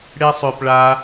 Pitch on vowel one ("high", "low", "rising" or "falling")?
high